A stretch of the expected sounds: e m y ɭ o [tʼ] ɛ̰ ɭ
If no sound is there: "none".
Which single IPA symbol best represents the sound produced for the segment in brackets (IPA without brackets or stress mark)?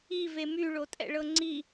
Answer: tʼ